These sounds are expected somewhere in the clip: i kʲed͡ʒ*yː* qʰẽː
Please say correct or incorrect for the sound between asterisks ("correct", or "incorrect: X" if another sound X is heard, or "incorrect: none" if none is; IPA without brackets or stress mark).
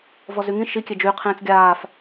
correct